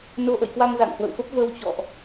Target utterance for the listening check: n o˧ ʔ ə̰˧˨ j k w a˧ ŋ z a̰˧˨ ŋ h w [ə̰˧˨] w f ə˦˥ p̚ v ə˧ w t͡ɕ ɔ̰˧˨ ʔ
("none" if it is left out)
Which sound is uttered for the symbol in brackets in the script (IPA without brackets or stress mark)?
ə̰˧˨